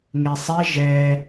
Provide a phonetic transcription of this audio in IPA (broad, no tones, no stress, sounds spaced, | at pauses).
ŋ e sˤ ɛ ʒ ɛ